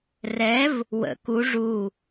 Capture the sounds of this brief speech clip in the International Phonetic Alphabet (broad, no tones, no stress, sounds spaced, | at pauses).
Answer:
r ɛ v | w ə̰ k u ʐ u